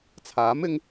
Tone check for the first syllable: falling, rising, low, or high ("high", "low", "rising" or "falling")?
rising